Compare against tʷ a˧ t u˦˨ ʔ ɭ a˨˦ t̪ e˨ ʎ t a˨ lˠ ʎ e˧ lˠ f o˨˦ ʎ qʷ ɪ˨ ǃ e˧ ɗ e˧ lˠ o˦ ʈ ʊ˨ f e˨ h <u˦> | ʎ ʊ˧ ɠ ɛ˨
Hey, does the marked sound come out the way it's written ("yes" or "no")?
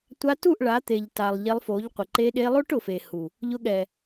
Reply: no